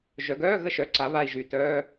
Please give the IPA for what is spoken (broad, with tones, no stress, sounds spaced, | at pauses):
ʒ œ˩˧ ɡ œː˧˥˧ ɣ ə˧ ʃ œ˩˥ ǀ a˩˧ β a˨˩ i̯ ʒ y˨˩ t œː˧˥˧